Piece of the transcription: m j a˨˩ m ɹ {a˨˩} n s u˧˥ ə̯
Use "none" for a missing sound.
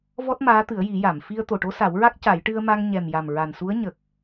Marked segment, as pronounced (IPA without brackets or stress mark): a˨˩